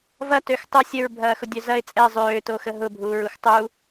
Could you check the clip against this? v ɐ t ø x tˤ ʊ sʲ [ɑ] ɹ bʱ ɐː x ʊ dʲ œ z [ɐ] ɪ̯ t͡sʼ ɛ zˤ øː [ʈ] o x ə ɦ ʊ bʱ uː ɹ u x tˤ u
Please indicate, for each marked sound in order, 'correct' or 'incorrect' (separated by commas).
incorrect, correct, incorrect